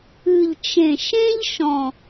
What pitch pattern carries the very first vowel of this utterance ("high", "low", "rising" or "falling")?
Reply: low